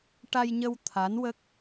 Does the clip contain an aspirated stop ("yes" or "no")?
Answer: yes